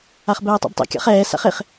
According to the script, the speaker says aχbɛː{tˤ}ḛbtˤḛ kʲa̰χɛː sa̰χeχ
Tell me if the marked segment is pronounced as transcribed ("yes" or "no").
yes